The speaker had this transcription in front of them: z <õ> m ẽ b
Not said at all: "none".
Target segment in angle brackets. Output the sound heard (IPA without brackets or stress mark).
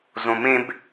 õ